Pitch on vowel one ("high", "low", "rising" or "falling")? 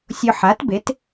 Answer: low